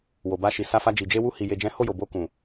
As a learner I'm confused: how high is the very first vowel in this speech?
mid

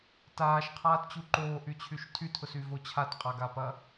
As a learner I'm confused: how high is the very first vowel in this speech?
low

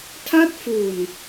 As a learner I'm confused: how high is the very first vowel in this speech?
low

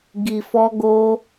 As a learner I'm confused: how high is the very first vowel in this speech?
high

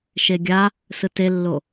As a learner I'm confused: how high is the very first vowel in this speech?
mid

